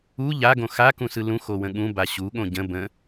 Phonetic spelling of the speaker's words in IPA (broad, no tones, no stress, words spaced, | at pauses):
u ʎaɡõ xakũsɯ lũxowə̃ ɠũba ɕuɠõ ɟə̃ bə̃